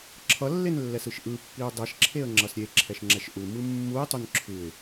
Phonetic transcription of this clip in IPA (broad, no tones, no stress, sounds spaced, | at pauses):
ǁʰ ʌ lː e n lː ɛ s ɯ ʃ ʔ ɯ pː i ʊ̯ dˤ ɛ ʃ ǁʰ e ə̯ ŋ͡ǁ ʌ s ɾʲ e ǁʰ ɛ ʃ ŋ͡ǁ ɛ ʃ ʔ u m ɯ mː u ɪ̯ tˤ u n ǁʰ ɯ ɪ̯